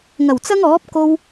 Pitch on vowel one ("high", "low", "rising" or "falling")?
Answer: low